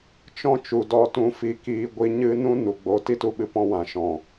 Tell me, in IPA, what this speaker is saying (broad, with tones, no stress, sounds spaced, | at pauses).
t͡ʃ ɔ̃˦ t͡ʃ u˨ d ɔ˦ t ũ˧ f i˨ k iː˧ ɡʷ i˧ ɲ ɨ˦ n ũ˦ n u˨ ɡ͡b oː˧ t i˦ t u˦ ɓ ɨ˧ p ɔ̃˧ w ã˨ ʃ ɔ̃˨